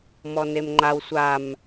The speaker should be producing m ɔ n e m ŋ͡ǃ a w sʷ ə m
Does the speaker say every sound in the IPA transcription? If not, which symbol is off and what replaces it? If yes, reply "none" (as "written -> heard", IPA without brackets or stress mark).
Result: ə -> a